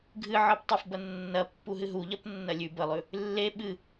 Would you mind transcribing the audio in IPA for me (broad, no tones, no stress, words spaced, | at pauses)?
ɡʱɨʕɨp tˤəfbɐ nːɐpːuɦɨ ɦuʎɐpnːɐ lʲʉ bəlˠʉ | lːe ɓɨ